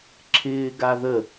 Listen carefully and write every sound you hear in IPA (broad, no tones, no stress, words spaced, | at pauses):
ǁʰɪːɡaðə